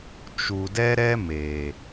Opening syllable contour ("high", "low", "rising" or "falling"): low